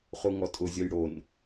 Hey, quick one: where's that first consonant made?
uvula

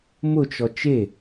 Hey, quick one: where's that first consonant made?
lips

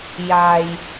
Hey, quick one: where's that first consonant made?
palate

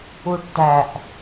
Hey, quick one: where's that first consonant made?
retroflex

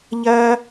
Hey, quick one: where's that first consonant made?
palate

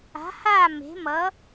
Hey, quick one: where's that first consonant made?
throat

